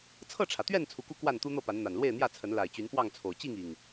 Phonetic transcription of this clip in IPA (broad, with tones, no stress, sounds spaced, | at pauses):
t͡sʰ ɤ˥˨ ʈ͡ʂʰ ä˩ t̪ ɥ ɛ˥˨ n t͡sʰ u˨˦ k u˦ k w a˥˨ n t̪ u˦ n̪ ɤ˥˨ p a˨˦ n n̪ a˨˩ n l w e˥˨ ɪ̯ n̪ j ä˥˨ t͡sʰ ə˨˦ n l a˨˩ ɪ̯ t͡ɕ y˨˦ n p w ɑ˥˨ ŋ t͡sʰ o˨˩ ʊ̯ t͡ɕ i˥˨ ŋ i˨˩ ŋ